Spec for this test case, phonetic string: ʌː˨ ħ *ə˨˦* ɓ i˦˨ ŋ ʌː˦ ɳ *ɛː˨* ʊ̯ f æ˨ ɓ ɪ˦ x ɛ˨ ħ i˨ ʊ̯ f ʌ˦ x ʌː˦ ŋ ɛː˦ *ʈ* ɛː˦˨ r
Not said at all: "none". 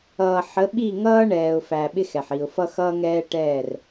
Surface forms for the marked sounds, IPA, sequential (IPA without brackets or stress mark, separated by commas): ə˨˦, ɛː˨, ʈ